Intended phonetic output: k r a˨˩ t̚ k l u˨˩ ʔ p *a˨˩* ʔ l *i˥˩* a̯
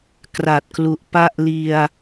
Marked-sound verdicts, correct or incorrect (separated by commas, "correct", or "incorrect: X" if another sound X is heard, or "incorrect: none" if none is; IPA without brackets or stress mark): incorrect: a˥˩, incorrect: i˧